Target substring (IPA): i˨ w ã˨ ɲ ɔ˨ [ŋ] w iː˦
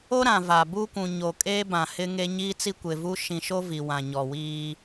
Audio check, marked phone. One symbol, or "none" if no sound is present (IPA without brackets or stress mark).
none